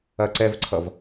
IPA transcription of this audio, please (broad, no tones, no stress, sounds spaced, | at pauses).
ɐ ǀ ɛ v ǀʰ ʌ v